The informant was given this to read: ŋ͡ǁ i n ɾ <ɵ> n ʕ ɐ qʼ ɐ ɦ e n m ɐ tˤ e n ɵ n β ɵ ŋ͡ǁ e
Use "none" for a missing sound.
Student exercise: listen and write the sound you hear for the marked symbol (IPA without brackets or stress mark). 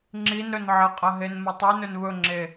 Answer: ɵ